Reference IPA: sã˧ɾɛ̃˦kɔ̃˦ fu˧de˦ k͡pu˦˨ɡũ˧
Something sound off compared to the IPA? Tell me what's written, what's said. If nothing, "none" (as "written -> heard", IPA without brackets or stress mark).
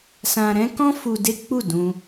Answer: ɡ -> d